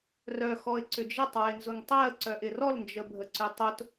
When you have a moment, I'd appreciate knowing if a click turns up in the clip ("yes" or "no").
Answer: yes